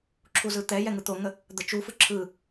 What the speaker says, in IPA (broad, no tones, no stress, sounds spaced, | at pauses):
ǁʰ u z ɯ t̪ ɛ j ɛ ŋ ɯ t̪ o ŋ ə | d̪ ə t͡ʃ u f ɯ ǁʰ ɯ